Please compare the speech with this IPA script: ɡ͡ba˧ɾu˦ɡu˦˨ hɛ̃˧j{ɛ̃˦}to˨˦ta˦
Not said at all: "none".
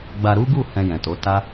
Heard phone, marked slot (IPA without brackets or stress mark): ɛ̃˨